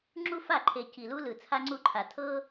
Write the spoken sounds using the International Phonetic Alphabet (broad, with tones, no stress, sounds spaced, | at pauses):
ŋ͡ǁ u˥ f a˥˩ ǃʰ e˨˩ c i˨˩ l u˥ l ɯ˨˩ t͡sʰ a˥ ŋ͡ǀ u˥˩ ǃʰ a˨˩ tʰ ɤ˥